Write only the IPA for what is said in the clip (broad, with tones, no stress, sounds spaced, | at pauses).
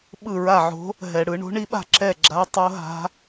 ɓ ɯ˥˩ ɹ a˥˩ ʕ o̤˧˥ | ɦ ɛ˧˩˧ ɽ ɯ˧˩˧ ɳ o̤˧˥ ɳ i˧˥ ɓ a̤˥˩ ǁ ɛ˥˩ ɡ͡ǁ a˧˥ tˤ o˧˥ ɦ a̤˧˥